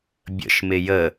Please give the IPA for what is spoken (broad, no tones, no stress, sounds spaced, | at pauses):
bʲ ə̰ ʃ m ɪ j ə